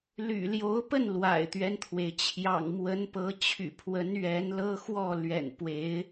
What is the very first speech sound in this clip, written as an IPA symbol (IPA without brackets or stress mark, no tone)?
l